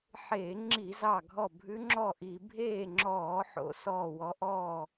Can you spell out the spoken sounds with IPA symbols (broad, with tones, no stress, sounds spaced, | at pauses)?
ħ eː˧˩˧ ŋ͡ǁ i˧˩˧ z ɑ˧˩ ɡʱ ɔ˧˩ bʱ ʉ˦˥ ŋ͡ǁ ɔ˥˨ ʔ i˧˩˧ bʱ eː˥˨ ŋ͡ǁ ɔː˧˩˧ ħ o̰˨˦ s ɔː˧˩ w ɔ˨˦ ʔ ɔː˥˨